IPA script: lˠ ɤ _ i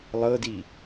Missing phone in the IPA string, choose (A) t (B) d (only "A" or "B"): B